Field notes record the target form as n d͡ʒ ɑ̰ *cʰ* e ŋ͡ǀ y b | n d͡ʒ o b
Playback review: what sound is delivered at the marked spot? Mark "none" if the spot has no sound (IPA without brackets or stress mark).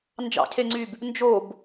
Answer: cʰ